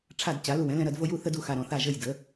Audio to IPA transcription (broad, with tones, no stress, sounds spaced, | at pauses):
ʈ͡ʂʰ a˦˨ d t͡ɕ a˩˥ l u˦˨ w ɛ̃˩˥ l ɛ̃˦ ɾ ɐ˦ d v o˦ j u˦ θ ə˦ d u˦˨ x a˦ ɾ ɔ̃˩˥ θ a˦˨ ʒ ə˦˨ j d ə˩˥